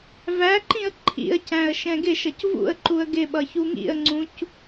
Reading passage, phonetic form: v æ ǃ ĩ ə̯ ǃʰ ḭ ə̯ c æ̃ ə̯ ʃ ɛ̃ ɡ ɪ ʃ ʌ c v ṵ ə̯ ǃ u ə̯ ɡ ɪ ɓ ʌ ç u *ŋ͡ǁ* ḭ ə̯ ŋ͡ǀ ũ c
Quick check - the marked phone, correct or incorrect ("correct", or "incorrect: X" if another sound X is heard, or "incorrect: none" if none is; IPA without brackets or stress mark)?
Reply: incorrect: ŋ